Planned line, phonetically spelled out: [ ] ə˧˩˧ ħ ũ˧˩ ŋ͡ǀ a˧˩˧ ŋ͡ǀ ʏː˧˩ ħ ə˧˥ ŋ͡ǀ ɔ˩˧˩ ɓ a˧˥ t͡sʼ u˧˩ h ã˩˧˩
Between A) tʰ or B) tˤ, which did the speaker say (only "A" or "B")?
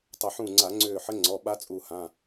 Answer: B